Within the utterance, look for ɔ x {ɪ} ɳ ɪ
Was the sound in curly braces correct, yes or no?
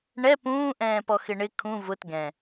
yes